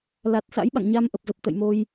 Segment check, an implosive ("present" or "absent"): present